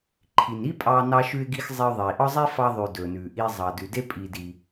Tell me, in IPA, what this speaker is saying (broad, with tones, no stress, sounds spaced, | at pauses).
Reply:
ǃʰ i˨ n i˦ pʼ ɑ˧ n ɑ˧ ʃ ʉ˧ ɪ̯ ɡ i˧ x zˤ ɛ˧ ʊ̯ ðˤ iː˨ ʔ ɒ˦ zˤ e˦ f ɑ˧ ðˤ ʉː˨ d ɵː˨ n ʉː˨ ʔ iː˧ zˤ ɑ˨ d ʉ˨ d e˦ pʼ iː˧ d i˧